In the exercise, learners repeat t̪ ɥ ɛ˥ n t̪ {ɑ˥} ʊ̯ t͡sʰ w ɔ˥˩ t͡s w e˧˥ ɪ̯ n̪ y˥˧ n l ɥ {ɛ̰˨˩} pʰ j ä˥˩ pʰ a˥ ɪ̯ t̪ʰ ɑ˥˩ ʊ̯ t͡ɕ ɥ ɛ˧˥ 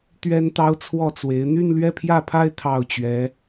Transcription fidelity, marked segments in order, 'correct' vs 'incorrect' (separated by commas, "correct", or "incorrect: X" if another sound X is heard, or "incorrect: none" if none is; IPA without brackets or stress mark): correct, incorrect: ɛ˥˧